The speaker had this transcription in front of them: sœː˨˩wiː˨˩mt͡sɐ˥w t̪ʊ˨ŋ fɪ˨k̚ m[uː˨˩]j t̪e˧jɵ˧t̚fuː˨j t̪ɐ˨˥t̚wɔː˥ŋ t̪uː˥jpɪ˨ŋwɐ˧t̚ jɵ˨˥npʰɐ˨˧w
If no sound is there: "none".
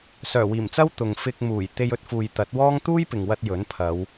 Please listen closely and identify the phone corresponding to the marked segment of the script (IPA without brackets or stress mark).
uː˨˩